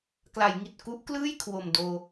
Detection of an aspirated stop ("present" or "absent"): present